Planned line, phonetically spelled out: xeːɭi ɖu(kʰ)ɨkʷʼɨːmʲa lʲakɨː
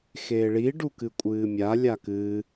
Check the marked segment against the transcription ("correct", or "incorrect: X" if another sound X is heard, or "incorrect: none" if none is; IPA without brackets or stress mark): incorrect: k